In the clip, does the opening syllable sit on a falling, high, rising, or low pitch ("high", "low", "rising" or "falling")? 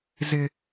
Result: high